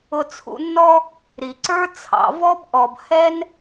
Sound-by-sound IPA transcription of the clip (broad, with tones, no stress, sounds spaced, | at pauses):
ʊ˧ t͡sʰ ṵ˧ nː ɔ˥ | ɾ i˩ ǀ ə˞˥ t͡sʰ ɑ̰˩ v ɔ˥ b ʔ ɔ˩ b h ɛ˥ n